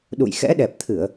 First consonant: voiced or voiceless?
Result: voiced